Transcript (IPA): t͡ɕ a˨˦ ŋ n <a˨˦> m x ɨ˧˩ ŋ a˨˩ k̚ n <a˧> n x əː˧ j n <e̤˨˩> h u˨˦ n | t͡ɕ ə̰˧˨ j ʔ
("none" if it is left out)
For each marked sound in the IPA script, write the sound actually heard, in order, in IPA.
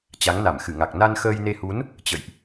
a˧˩, a˧, e˧

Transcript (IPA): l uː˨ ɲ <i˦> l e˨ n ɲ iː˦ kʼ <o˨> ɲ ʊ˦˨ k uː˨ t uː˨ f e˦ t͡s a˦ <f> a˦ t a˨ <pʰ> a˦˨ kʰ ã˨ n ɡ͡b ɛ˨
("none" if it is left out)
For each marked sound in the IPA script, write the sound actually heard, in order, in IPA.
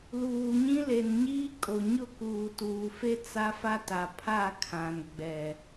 ĩ˦, o˨, f, pʰ

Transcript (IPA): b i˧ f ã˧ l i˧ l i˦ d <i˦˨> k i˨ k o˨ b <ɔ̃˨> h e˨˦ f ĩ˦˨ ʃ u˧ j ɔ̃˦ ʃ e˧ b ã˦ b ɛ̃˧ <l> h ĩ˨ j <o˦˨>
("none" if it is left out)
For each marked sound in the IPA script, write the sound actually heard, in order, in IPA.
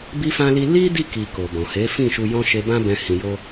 i˦˨, ɔ̃˨, none, o˧

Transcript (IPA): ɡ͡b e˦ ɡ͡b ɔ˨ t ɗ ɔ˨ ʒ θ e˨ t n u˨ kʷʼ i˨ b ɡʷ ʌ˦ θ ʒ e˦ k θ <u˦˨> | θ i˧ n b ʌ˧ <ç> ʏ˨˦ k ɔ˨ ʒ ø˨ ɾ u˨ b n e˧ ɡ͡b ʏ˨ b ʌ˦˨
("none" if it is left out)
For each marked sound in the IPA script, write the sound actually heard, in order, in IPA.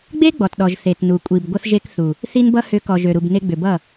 u˨, h

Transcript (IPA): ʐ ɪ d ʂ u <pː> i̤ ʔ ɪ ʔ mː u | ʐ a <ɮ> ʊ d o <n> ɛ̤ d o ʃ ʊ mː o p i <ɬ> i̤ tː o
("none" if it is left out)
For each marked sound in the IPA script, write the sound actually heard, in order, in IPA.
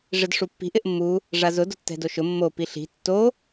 pː, z, tː, ɬ

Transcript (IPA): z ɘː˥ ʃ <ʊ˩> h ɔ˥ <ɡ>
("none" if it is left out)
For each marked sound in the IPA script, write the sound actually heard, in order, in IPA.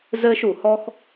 u˩, x

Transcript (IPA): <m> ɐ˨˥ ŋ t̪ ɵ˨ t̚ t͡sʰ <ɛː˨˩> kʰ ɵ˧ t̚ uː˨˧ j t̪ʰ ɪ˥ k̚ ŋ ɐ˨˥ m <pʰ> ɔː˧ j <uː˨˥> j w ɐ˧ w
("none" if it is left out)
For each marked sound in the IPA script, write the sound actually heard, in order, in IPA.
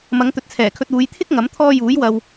m, ɛː˨˩, t̪ʰ, uː˨˥

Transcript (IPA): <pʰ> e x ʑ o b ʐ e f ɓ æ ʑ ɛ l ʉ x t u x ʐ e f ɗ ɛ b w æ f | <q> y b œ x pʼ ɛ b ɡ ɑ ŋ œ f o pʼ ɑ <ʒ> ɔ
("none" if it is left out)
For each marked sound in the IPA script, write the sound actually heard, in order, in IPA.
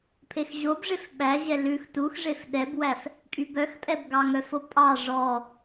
pʰ, kʼ, ʐ

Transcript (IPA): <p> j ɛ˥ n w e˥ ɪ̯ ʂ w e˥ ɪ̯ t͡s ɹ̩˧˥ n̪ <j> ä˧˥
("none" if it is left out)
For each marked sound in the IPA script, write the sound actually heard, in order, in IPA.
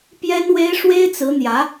p, j

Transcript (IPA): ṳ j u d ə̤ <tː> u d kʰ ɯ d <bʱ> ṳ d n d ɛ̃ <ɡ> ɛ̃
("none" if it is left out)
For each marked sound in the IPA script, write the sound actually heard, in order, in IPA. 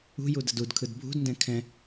d, bʱ, kʰ

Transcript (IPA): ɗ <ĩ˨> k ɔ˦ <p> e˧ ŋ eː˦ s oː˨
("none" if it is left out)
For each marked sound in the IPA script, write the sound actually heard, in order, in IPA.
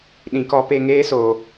ĩ˨, p

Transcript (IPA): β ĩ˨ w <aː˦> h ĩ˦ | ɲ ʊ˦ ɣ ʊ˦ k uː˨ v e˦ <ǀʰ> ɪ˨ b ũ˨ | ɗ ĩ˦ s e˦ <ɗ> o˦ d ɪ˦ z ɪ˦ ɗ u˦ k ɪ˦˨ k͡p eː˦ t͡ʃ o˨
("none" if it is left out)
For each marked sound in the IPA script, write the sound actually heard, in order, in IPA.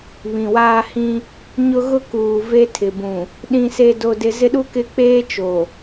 aː˦, tʰ, d

